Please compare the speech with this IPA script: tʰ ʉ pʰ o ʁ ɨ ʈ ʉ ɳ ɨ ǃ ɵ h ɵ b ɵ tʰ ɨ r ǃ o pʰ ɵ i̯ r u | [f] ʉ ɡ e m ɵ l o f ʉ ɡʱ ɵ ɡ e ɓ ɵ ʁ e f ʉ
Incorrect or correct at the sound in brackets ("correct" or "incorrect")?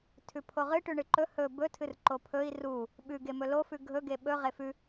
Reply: incorrect